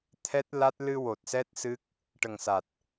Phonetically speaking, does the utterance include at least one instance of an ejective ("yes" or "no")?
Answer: no